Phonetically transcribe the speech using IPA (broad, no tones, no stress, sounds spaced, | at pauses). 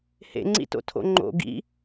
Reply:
h ḛ ŋ͡ǀ ḭ t o̰ tʰ o̰ ŋ͡ǃ o̰ ɡ ḭ